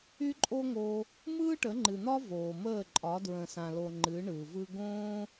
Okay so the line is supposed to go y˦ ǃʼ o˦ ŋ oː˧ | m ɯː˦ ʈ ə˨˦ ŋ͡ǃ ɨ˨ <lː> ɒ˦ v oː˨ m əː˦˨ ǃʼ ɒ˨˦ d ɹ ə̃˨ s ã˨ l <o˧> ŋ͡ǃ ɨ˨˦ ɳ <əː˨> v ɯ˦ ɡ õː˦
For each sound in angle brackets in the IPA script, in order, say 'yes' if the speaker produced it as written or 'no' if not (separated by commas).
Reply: no, no, no